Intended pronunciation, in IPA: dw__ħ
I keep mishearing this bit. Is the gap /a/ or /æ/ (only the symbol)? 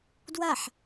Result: a